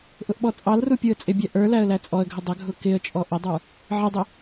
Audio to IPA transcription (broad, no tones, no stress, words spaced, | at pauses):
ʔʊʔɓɔt͡sʼɑlru pʲuə̯t͡sʼɪbʲæ ʔə˞ læə̯læt͡sʼɔə̯ɡʱə dˤəɡʱʊ kɪə̯t͡ʃʼɔ ʔədˤə˞ | ʕɪdˤɪ